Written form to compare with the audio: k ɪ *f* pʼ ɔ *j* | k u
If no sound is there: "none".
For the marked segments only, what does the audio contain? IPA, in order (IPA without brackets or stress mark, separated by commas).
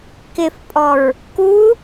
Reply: f, ɹ